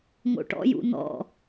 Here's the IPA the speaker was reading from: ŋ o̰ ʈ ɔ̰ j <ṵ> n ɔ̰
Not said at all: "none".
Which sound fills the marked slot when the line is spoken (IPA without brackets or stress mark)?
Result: ṵ